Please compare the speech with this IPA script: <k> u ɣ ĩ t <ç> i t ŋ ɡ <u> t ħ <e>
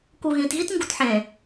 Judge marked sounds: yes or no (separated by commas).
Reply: yes, no, yes, no